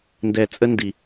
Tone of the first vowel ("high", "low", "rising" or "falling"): low